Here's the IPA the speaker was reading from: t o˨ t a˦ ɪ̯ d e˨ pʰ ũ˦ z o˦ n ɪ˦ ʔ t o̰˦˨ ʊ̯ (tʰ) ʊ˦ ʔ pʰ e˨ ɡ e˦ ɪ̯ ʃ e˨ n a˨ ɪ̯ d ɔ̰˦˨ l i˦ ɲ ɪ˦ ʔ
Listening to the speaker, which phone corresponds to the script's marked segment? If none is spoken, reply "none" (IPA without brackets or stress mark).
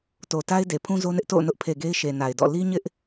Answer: n